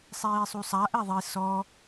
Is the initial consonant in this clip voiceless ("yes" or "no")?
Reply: yes